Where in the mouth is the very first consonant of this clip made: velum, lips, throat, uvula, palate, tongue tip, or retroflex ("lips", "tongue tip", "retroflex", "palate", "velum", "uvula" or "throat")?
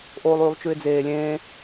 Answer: throat